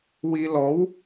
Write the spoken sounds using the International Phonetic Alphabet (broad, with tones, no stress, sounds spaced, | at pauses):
w i˧ l ɔ˧˥ w